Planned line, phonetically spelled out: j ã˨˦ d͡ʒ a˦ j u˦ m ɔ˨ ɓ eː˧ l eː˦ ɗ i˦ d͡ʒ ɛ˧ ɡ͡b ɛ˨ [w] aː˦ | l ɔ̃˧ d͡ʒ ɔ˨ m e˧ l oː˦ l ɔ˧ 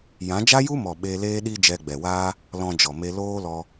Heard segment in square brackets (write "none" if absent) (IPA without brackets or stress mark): w